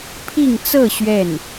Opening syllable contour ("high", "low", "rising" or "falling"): falling